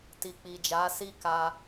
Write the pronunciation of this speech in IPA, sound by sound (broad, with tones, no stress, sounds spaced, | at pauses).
t i˨ k͡p i˨ d͡ʒ a˨˦ s i˦ k a˧